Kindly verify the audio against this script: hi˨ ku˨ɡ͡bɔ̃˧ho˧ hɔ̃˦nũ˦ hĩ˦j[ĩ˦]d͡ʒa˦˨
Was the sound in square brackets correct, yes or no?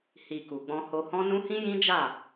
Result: yes